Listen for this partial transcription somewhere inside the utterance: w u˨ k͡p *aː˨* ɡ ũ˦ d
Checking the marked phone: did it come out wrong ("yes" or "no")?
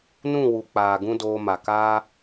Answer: no